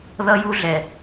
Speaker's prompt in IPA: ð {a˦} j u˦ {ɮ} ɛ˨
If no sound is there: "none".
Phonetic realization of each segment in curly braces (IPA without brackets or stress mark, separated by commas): ʌ˦, ɮ